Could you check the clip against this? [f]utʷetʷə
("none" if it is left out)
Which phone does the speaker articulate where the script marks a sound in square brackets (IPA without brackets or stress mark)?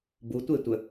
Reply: b